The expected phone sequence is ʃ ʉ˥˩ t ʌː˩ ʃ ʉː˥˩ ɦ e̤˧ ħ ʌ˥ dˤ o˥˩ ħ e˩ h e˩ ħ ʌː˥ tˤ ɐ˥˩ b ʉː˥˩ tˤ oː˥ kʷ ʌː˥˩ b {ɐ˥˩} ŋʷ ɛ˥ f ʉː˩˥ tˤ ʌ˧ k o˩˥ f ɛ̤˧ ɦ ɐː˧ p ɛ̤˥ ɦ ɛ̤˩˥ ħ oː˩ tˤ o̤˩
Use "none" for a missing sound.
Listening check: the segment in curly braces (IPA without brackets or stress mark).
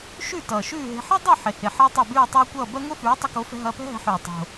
ɐ˥